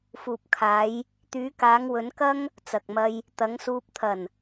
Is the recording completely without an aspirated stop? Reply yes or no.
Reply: no